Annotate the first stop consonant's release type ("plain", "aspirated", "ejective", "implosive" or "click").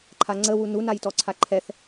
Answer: click